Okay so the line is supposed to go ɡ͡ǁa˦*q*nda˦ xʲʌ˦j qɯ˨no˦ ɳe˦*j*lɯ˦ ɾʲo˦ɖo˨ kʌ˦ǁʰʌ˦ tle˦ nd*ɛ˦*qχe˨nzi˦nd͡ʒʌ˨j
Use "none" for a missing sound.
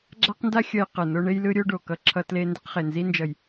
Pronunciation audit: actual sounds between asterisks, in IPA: q, j, ɛ˦

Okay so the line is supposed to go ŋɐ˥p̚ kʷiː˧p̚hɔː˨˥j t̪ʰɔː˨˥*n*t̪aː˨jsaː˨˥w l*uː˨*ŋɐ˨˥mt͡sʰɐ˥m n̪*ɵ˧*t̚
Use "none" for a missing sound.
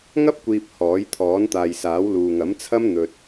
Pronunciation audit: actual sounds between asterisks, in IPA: n, uː˨, ɵ˧

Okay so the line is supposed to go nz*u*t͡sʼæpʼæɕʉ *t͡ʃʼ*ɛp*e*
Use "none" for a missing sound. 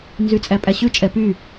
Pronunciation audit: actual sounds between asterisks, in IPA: y, t͡ʃʼ, y

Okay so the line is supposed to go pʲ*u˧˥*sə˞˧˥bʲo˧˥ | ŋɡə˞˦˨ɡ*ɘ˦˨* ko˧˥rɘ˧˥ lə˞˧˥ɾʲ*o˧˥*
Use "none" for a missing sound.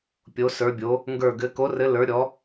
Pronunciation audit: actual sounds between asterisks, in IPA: o˧˥, ɘ˧˥, ɔ˧˥

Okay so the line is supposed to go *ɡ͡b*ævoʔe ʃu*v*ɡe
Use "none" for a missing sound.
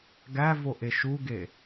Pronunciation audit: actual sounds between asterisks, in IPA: ɡ, none

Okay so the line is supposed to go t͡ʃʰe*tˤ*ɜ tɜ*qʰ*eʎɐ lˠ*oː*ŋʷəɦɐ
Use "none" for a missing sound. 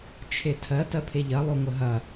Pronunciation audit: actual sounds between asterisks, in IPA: tʰ, pʰ, o

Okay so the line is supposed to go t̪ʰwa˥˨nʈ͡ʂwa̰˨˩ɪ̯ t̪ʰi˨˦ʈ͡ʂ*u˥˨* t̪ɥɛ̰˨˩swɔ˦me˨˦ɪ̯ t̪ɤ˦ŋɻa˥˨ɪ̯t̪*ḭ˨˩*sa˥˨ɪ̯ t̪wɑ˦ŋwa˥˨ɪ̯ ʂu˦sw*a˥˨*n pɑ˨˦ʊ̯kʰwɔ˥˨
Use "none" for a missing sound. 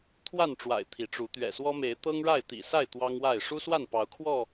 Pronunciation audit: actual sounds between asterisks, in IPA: u˨˦, ḭ˨˩, a˥˨

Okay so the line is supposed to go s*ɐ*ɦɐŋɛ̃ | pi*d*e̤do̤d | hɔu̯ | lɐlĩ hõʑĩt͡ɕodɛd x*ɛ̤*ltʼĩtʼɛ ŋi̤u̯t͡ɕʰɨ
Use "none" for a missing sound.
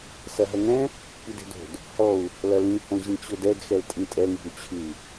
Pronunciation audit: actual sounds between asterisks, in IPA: ɐ, d, ɛ

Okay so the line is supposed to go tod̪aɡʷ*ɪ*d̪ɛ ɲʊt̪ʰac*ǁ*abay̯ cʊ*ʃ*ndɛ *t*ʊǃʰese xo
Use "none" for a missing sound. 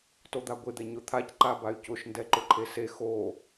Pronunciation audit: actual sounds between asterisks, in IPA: ɪ, ǃ, ʃ, ǃ

